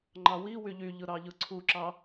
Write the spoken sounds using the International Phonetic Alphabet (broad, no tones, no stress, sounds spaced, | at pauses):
ŋ͡ǃ ɑ w i w y ʎ y ʎ ɯ ɾ ɑ ʎ ɯ ǀʰ u ǁ ɑ